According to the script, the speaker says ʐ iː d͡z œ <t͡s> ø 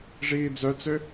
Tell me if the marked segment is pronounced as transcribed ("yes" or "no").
yes